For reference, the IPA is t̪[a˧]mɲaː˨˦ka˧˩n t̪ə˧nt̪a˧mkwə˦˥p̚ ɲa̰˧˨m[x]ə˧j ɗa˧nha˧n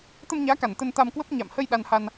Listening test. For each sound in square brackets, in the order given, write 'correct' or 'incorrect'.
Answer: incorrect: ə˧, incorrect: h

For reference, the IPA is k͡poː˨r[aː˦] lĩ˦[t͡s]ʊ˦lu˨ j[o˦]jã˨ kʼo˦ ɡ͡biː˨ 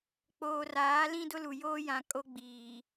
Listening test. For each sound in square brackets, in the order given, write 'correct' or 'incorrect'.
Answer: incorrect: aː˨˦, incorrect: d, incorrect: oː˦

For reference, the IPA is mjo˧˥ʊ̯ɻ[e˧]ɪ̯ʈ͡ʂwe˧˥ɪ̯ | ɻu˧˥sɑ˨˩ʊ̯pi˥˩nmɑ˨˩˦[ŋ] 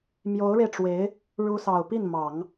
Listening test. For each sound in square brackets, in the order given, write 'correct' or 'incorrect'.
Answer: correct, correct

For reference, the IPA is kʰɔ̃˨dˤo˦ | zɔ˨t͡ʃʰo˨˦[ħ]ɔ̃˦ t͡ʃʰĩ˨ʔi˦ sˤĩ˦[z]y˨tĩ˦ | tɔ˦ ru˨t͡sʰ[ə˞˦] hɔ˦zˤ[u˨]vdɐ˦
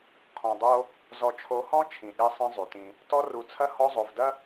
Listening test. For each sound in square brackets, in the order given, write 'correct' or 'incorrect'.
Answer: incorrect: h, incorrect: zˤ, incorrect: ɐ˦, incorrect: o˨

